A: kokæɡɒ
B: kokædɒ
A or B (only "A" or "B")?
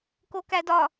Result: B